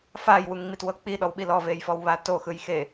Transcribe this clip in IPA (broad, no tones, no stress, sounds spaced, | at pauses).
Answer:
f a j w u ŋ ŋ͡m i t w ɤ k͡p i ɗ ɔ w ɓ i l ɔ v e j f ɔ w β a t o x ɯ j x e